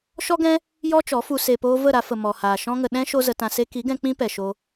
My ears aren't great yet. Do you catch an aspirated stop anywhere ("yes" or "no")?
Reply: no